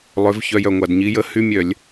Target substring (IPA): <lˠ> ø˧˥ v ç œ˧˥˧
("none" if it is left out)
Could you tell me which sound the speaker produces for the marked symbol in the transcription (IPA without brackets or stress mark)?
lˠ